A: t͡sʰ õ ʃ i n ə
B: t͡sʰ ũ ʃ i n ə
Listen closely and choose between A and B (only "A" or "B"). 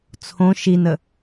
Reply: A